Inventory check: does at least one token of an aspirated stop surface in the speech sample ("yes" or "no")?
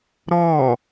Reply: no